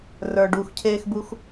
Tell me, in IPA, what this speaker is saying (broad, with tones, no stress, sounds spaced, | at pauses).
r ə˞˩ ɖ uː˩ x cʰ eː˧ x b u˧ x